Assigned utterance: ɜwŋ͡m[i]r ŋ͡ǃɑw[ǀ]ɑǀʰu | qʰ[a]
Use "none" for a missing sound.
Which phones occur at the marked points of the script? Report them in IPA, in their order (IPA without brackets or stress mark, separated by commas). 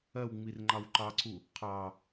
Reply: i, ǃ, ɑ